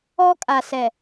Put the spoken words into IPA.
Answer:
ɔ˦ kʼ a˨ s ɛ˨

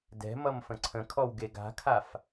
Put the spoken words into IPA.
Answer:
d ɛ̤ m ʌ m f ə̃ ǀʰ ə̃ kʰ ɔ w ɡ e ɡ a̤ kʰ a f

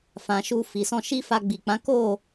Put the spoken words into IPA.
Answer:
f ã˨ ʃ u˧ f i˨ s ɔ̃˧ ʃ i˦ f a˧ ɡ͡b i˨ k͡p ã˨˦ k o˦˨

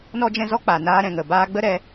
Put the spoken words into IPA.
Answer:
n ɔ˦ d͡ʒ ɛ̃˦ z ɔ˦ k͡p a˨ n aː˧ ɾ ɛ̃˨ ŋ ə˨ b aː˧ ɡ͡b ə˦ ɾ ɛ˧

